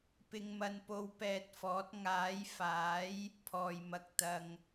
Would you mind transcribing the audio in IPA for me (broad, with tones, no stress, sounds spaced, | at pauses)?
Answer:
p ɪ˧ ŋ m ɐ˧ n p o˧ w p ɛː˨ t̚ f ɔː˨˥ t̚ ŋ aː˨˥ j f aː˨˥ j | pʰ ɔː˨ j m ɐ˧ k̚ t̪ ɐ˨ ŋ